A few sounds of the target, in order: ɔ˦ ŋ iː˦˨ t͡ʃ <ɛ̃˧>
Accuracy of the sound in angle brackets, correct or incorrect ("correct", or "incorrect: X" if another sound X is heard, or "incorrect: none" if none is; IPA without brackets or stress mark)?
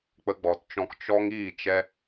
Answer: incorrect: ɛ˧